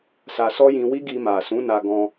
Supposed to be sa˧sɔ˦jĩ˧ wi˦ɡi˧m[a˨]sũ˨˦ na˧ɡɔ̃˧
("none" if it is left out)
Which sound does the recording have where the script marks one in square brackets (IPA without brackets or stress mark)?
a˨